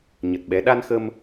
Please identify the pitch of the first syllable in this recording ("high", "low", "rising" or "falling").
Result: low